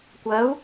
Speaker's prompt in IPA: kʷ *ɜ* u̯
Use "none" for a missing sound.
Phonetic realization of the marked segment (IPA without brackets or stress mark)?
ɜ